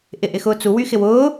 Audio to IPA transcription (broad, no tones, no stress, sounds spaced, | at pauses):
ʔ ɪ ʔ ɪ x ʊː t͡s u w y x ɪ w ʊː